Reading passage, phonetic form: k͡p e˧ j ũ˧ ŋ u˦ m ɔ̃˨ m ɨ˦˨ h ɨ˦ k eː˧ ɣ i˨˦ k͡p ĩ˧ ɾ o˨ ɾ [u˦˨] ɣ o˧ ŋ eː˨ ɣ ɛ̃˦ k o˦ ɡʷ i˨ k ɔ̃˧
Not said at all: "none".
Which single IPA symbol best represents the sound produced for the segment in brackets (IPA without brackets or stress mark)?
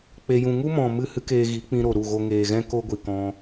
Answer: u˦˨